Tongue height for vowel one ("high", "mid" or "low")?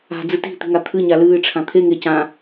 low